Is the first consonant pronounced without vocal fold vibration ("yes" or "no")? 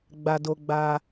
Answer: no